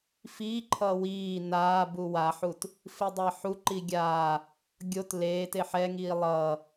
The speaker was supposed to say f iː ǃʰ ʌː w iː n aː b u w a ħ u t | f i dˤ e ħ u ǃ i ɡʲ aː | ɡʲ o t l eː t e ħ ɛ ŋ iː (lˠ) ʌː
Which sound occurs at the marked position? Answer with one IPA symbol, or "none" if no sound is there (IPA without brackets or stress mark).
lˠ